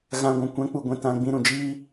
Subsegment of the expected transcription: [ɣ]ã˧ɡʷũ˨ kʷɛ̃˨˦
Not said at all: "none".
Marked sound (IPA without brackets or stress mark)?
ɣ